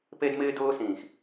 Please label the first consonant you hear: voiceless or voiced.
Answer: voiceless